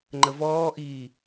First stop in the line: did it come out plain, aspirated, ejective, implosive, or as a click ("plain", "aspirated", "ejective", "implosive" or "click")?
click